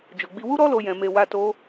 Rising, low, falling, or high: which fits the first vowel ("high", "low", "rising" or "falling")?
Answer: low